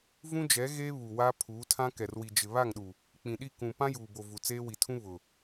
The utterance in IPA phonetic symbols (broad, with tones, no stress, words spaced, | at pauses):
vũ˦d͡ʒɛ˨˦ ɣeː˦ βu˨wa˦ pʰuː˨˦tʰã˦ kɛ˨rwi˨d͡ʒɪ˨ βa˦˨ŋɗu˨ | k͡pĩ˨ɗi˦˨ kũ˨ pã˦juː˨bo˨ vu˨t͡seː˦wi˨tʰũ˦ βʊ˨